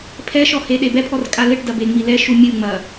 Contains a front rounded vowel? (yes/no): no